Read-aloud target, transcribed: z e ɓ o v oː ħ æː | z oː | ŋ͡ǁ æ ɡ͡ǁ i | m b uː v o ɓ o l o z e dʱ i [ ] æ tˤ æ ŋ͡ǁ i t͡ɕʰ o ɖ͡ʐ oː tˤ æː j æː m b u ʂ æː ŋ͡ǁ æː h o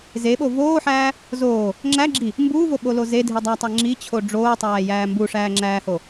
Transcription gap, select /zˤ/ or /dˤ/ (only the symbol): dˤ